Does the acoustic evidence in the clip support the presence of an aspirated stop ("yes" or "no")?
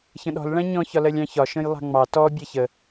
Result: no